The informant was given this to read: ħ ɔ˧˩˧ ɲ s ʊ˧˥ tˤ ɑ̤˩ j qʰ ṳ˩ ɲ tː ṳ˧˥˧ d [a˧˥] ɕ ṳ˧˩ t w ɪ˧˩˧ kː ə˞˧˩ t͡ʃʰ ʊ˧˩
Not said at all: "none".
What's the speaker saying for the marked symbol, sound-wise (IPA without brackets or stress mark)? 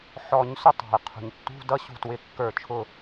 ʌ˧˥